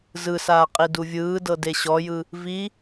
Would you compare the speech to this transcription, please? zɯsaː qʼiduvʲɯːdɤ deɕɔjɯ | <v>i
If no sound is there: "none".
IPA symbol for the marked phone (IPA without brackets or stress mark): v